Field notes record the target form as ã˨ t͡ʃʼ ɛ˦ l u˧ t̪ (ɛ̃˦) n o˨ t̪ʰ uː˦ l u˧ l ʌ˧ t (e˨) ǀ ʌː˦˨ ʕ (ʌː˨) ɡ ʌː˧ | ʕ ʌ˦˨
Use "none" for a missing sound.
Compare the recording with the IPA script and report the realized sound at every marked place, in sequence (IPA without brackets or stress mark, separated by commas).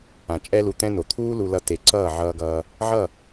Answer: ɛ̃˦, e˨, ʌː˧